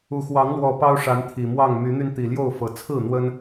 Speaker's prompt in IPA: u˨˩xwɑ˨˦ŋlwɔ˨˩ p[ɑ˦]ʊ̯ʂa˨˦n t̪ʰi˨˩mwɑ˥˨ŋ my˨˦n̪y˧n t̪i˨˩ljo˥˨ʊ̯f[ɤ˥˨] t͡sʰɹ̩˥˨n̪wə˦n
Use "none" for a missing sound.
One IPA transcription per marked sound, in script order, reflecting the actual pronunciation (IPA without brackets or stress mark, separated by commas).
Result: ɑ˦, ɤ˨˩